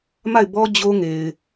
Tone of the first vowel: falling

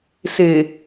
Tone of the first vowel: low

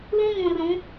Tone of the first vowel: high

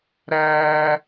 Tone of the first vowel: high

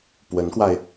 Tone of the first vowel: rising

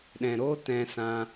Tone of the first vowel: low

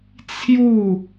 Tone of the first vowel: falling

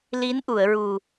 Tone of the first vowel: rising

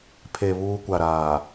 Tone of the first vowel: low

